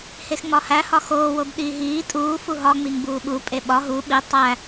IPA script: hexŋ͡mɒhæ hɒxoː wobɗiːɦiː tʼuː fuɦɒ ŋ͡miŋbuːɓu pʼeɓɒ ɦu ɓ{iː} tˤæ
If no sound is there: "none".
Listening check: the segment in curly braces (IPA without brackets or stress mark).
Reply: i